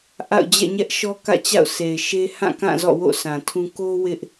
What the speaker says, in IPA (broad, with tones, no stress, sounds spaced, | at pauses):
ʔ a̰˦˨ ʊ̯ d͡ʑ ɛ̰˦˨ ɲ ɛ˦ ʔ ʃ ɔ˦ k ä̰˦˨ t͡ɕ a̰˦˨ ʊ̯ sʰ e˨ ɪ̯ ʃ e˦ h ã˦˨ k ã˦˨ z ɔ̰˦˨ w o̰˦˨ sʰ ã˨ tʰ ũ˦ k o˦ w ɪ˦ ʔ